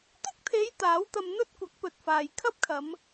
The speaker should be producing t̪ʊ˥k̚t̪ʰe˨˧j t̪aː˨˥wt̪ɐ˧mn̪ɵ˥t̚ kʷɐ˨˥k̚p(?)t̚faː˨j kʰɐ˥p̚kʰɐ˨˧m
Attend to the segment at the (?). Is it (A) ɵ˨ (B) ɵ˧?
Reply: A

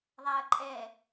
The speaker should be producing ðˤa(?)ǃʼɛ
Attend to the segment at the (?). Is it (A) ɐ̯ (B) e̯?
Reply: A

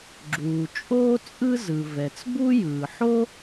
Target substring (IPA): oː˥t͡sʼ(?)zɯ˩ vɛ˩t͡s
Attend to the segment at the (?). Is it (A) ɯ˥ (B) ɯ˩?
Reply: A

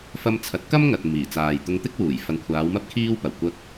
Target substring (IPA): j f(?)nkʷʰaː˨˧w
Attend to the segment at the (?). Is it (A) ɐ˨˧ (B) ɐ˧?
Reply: A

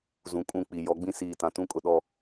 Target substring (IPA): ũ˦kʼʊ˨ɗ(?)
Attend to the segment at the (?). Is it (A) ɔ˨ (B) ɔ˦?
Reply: A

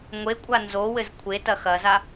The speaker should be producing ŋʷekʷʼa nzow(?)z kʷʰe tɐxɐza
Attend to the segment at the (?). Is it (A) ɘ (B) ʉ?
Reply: A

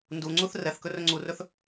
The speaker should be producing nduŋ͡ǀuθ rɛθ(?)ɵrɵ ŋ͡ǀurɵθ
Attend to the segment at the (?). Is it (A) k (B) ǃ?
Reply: A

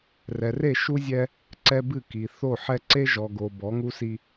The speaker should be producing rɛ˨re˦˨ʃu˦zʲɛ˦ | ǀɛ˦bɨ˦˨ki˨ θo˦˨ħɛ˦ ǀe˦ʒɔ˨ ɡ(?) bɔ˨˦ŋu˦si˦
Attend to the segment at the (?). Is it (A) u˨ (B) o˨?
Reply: B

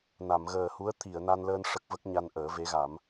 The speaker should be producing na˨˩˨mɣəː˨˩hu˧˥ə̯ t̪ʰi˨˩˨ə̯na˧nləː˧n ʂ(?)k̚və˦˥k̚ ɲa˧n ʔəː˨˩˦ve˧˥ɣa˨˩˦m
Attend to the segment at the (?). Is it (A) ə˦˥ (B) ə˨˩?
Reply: A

